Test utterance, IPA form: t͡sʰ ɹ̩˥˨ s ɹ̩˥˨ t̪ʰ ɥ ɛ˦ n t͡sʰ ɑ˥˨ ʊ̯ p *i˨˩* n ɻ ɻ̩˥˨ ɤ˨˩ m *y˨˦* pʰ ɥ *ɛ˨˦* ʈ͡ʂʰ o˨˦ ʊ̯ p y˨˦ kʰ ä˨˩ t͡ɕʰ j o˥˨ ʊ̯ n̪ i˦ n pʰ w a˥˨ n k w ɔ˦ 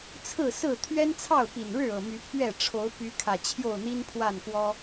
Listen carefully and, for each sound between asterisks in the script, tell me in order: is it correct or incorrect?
correct, correct, incorrect: ɛ˥˨

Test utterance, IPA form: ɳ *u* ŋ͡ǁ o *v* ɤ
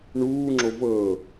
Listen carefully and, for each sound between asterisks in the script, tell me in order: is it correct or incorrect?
incorrect: uː, correct

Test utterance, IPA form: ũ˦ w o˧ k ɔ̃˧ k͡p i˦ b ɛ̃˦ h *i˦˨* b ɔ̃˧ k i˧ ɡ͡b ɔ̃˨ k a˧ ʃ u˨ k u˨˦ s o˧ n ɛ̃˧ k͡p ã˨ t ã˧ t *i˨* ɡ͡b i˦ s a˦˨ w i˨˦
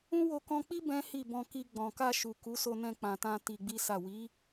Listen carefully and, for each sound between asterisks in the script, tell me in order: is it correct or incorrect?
correct, incorrect: i˧

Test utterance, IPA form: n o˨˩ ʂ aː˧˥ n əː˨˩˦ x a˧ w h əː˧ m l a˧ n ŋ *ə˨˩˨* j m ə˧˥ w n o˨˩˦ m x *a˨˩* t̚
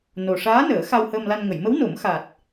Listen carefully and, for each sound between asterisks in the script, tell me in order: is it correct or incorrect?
correct, correct

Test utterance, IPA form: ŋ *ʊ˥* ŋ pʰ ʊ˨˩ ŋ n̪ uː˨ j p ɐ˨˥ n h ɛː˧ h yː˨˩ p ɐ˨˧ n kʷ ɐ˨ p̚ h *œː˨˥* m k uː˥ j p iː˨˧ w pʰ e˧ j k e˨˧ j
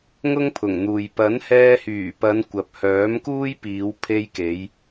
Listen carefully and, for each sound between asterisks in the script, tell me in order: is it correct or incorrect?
correct, correct

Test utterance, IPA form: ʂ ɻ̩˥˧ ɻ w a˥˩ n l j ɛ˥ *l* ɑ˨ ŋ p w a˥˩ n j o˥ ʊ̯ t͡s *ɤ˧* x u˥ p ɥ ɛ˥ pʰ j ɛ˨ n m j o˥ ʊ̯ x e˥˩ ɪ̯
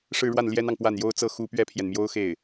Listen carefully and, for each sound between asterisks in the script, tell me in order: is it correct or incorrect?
incorrect: n, incorrect: ɤ˥

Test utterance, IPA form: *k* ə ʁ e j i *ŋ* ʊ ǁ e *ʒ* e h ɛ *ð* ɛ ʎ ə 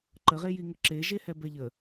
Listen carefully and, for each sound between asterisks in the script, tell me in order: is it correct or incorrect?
incorrect: ǃ, correct, correct, incorrect: b

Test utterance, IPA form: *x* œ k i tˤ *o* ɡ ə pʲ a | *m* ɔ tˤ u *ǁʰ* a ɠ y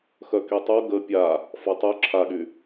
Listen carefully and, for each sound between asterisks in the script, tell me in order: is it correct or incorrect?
correct, correct, incorrect: f, correct

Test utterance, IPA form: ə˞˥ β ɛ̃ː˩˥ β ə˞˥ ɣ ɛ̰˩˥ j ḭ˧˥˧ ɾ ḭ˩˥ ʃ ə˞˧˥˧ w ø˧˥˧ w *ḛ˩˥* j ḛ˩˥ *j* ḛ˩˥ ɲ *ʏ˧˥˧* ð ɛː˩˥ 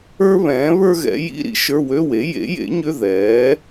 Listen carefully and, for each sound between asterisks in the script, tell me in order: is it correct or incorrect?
incorrect: e˩˥, correct, correct

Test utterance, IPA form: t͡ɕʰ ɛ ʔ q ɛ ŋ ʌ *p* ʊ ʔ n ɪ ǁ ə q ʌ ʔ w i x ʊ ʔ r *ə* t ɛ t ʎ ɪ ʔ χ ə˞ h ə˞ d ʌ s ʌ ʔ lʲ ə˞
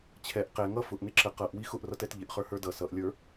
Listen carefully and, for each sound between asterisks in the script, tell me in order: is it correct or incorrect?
incorrect: f, incorrect: ʌ

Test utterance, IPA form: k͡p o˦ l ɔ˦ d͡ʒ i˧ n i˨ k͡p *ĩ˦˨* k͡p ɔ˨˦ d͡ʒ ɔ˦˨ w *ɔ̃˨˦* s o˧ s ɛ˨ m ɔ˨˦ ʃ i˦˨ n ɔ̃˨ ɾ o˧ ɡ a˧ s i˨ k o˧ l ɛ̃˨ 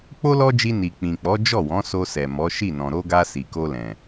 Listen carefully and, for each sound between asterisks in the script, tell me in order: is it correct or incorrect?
incorrect: ĩ˨, correct

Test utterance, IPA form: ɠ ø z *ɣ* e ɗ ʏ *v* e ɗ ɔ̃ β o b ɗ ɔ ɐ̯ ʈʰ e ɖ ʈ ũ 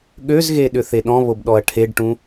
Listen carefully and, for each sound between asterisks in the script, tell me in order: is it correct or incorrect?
correct, incorrect: θ

